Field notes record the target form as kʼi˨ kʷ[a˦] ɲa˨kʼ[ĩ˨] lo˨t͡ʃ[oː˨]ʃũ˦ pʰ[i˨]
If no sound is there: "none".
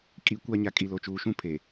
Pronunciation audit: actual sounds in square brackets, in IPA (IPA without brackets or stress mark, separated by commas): a˦, i˨, uː˨, e˨